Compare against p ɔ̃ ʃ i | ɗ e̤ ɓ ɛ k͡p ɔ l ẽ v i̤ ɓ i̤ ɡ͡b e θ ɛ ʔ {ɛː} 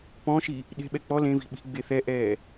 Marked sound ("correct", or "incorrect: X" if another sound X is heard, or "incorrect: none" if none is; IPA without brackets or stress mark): correct